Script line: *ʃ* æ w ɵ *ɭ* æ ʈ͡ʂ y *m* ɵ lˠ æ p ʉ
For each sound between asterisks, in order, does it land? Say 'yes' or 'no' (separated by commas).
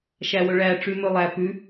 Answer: yes, yes, yes